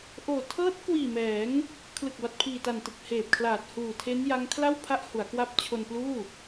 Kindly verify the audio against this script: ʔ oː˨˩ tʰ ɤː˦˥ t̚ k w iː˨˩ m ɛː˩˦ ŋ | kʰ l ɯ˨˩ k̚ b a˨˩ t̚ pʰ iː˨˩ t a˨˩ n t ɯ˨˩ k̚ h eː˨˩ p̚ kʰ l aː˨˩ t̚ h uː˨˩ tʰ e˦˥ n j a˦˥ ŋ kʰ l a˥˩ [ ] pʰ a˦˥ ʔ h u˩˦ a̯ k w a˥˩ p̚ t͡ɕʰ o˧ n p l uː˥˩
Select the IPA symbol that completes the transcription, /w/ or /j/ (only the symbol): w